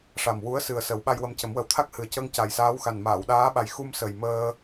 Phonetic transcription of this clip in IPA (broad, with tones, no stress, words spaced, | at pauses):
ʂa˨˩mwu˧˥ə̯ sɨ˨˩ə̯ sə˨˩˦wɓa˧jwə˧mcə˨˩˦m wə˨˩wt̪ʰa˦˥k̚hɨ˨˩ə̯cəː˧ŋ ca˨˩jsaː˧˥w xa˨˩nmaː˨˩˨wɗaː˧˥ɓa˨˩j xu˧m sə˨˩jməː˧